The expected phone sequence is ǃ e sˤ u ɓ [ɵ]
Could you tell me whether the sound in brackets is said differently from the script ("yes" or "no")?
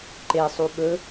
no